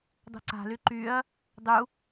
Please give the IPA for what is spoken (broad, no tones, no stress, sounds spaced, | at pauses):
dˤ ṳ ǀ a̤ l y ǃ y ɐ̯ | dˤ u